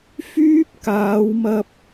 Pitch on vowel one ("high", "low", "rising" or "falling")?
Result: high